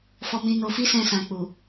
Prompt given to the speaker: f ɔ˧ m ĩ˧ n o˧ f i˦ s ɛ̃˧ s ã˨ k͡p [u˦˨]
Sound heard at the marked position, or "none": u˨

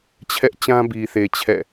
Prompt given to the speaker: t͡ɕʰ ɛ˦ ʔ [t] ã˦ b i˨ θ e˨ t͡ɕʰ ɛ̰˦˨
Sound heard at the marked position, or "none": t͡ɕ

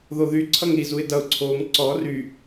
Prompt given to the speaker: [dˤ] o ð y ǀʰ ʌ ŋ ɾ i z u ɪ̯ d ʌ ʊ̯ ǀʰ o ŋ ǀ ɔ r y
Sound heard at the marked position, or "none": ð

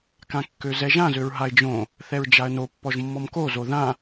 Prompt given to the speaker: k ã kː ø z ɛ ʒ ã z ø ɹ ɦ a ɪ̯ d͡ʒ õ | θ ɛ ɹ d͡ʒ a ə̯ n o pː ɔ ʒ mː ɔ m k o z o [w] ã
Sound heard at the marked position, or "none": ð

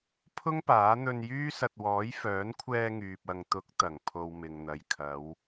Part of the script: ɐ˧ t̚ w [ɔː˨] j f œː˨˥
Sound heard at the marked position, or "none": ɔː˨˥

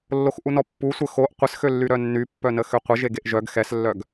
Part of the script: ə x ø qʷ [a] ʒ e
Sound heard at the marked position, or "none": ə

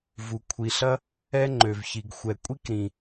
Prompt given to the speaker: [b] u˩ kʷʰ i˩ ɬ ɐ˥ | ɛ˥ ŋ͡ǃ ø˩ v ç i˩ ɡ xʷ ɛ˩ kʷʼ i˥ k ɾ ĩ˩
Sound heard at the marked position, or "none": v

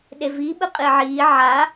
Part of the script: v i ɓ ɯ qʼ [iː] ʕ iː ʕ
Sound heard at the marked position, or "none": i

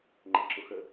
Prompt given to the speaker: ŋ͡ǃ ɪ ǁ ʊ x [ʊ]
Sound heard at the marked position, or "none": ə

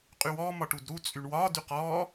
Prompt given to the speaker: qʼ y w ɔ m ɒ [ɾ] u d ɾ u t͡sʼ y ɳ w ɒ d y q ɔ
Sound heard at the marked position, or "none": ʈ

